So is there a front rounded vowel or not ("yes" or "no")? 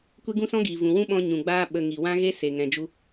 no